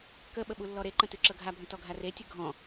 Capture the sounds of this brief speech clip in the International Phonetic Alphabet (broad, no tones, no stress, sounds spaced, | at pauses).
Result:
k ə ɓ ə ɓ u lː ɔ ɾ e ǃ ə̃ t ʉ ǁ ɤ ɡʱ a bʱ ə̃ t ɔ ɡʱ a r e tʲ ɯ ɡʱ ɔ̃